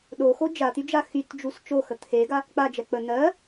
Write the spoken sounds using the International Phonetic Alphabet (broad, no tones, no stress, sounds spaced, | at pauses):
ɗ o x o d͡ʒ a t̪ y d͡ʒ a x y t d͡ʒ u s t͡ʃ o x ə t̪ʰ e ɡ a | k͡p a d͡ʒ ɛ k͡p ə n ɜ